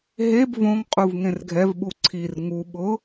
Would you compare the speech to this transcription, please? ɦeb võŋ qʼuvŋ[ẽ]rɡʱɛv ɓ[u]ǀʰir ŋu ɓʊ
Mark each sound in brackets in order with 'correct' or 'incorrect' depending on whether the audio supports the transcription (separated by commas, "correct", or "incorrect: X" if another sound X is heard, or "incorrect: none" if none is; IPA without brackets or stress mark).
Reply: correct, correct